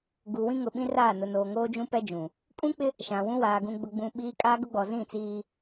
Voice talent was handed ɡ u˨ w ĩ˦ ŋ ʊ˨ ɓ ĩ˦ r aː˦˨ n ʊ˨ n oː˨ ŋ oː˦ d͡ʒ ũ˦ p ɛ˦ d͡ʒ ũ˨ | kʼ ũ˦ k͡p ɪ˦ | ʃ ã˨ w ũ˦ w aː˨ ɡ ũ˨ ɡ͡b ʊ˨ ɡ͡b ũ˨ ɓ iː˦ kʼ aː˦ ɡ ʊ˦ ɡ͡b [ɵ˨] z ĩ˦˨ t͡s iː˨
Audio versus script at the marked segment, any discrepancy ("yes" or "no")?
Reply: yes